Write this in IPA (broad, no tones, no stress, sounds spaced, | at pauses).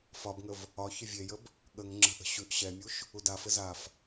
f ɒ b ŋ ə v | ɒ ç ɘ vʲ e j ə b | ɠ ə ŋ ŋ͡ǁ ə̤ ʔ ə̤ ɕ ʉ ʔ ɕ ɛ mʲ u ʃ | u d a f ɘ z a f